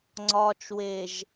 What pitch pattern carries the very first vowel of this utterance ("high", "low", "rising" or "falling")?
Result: low